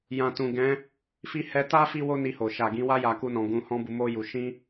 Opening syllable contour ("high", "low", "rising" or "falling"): low